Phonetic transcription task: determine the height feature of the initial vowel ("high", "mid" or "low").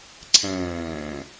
low